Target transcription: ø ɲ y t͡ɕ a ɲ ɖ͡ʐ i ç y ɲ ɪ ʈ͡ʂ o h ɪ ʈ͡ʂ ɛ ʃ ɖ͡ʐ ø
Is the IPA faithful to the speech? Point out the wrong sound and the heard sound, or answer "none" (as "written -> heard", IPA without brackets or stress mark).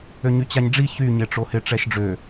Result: none